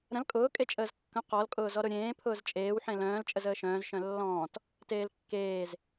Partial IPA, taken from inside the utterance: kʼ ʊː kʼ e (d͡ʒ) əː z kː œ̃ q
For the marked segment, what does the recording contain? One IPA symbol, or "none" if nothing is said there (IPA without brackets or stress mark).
t͡ʃʼ